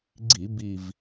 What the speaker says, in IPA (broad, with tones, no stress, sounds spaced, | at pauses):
ɡ͡ǀ i˧˩˧ b i˨˩ v